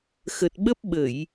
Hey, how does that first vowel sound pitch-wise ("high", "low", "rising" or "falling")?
low